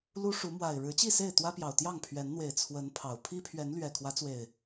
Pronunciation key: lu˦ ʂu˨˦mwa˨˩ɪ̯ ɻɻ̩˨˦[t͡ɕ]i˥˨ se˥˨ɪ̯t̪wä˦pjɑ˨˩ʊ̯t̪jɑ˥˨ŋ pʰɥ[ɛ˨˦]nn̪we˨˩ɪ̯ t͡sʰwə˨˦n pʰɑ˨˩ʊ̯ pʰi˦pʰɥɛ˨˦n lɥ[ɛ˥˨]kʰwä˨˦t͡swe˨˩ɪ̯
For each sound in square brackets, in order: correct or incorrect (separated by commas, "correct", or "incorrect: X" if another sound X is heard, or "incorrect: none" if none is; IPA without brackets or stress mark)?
correct, correct, incorrect: ɛ˨˩